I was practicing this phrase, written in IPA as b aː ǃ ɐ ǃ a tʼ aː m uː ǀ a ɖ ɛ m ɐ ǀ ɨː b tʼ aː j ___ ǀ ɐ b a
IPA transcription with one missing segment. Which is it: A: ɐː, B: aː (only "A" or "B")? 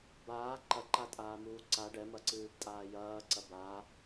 A